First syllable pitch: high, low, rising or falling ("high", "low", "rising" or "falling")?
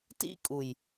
high